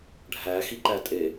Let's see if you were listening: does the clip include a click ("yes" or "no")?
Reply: yes